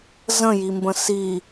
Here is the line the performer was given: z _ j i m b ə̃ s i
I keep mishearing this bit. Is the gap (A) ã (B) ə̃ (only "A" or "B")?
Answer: B